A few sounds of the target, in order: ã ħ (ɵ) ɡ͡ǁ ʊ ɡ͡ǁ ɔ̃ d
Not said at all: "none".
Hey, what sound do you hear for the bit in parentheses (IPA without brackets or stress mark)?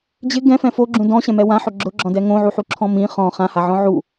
ʊ